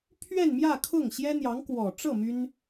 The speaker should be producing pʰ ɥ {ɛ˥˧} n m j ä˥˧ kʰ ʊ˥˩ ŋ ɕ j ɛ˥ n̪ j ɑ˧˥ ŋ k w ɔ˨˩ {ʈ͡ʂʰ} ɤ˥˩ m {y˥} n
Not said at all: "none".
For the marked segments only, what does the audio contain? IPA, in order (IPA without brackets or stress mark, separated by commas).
ɛ˥˧, ʈ͡ʂ, y˥